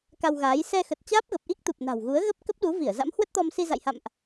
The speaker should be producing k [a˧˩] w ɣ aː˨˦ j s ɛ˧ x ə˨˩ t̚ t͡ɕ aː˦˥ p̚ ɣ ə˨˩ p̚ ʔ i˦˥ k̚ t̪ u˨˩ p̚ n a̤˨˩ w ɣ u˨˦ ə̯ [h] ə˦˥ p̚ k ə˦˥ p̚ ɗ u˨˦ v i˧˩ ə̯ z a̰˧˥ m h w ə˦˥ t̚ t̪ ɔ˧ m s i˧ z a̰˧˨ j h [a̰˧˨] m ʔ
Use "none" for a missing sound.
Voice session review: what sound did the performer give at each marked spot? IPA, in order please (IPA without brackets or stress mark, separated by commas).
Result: a˧, ɣ, a̰˧˨